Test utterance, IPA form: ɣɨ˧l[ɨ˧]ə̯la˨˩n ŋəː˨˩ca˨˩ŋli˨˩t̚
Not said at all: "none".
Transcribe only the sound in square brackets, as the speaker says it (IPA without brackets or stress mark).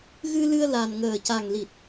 ɨ˧